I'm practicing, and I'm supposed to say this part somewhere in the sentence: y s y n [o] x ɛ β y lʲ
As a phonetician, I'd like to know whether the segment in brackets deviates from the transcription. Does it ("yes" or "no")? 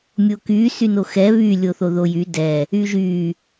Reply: no